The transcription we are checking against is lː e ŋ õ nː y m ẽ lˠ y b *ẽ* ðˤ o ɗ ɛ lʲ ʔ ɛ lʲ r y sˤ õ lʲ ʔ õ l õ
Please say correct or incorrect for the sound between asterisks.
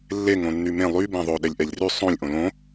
correct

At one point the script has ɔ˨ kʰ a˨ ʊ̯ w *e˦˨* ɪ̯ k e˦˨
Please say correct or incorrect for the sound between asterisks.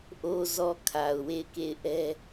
correct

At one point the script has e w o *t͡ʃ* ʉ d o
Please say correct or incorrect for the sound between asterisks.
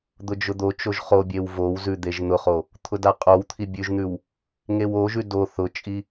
incorrect: ʒ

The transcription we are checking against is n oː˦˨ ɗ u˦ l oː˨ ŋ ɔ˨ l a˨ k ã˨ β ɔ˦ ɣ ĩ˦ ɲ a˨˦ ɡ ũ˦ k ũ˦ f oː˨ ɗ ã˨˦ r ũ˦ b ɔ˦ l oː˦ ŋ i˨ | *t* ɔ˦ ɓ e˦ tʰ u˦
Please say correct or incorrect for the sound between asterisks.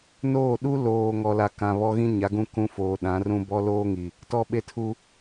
correct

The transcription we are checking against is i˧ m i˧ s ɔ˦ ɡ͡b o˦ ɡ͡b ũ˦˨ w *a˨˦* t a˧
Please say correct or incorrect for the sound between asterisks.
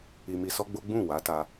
correct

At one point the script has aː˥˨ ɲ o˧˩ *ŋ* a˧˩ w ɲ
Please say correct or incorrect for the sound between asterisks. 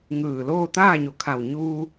incorrect: kʰ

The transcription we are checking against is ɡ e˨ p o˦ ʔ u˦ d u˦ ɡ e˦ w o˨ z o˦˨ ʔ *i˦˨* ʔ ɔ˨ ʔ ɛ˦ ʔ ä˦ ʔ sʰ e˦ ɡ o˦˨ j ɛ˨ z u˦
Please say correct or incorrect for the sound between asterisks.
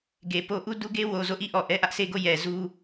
correct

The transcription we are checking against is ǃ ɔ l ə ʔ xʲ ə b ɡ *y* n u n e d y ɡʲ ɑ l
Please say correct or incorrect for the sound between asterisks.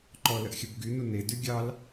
correct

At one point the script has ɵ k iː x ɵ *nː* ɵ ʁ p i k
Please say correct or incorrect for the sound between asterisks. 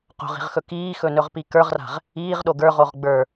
incorrect: n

